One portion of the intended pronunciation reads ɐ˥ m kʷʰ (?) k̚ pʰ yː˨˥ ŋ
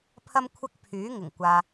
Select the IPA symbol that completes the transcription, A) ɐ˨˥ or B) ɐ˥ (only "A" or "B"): B